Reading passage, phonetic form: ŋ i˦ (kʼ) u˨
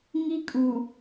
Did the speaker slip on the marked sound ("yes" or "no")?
no